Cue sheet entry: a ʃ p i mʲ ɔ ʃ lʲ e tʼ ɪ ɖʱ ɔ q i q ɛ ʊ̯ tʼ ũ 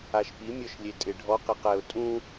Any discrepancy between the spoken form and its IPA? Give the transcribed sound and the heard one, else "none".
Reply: none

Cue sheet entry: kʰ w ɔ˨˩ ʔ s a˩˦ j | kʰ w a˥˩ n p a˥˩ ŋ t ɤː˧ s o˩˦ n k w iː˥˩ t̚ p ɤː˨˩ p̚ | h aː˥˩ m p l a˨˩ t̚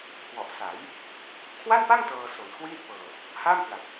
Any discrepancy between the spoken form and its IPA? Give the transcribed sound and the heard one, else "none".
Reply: none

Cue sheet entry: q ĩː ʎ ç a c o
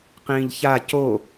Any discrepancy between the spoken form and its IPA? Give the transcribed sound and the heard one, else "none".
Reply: none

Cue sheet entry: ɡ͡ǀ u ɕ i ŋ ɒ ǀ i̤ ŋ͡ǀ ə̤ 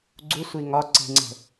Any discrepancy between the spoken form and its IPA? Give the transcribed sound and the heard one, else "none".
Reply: ɕ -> sʷ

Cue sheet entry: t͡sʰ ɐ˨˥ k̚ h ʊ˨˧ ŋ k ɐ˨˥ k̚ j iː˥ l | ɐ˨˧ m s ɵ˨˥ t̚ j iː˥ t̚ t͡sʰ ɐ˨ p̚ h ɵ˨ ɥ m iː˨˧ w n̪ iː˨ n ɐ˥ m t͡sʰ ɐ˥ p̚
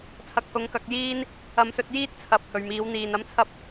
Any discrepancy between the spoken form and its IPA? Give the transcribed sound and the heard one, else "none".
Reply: l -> n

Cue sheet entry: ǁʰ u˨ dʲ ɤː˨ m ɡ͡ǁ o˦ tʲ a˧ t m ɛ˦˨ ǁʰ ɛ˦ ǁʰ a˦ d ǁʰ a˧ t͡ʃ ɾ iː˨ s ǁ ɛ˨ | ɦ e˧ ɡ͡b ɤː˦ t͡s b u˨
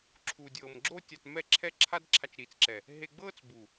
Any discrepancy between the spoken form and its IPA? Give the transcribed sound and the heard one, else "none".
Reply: s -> t͡s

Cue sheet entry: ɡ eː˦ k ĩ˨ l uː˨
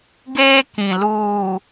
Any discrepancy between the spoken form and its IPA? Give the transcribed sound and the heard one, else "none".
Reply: none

